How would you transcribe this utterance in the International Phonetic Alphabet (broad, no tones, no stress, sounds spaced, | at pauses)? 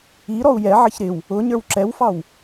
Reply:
i ɾ ɔ u̯ j ɛ ʕ ə ç ɾ ɪ w | ʊ ɲ ə˞ w ǁ ɛ w f ɑ w